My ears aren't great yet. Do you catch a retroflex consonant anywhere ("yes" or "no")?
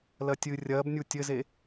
no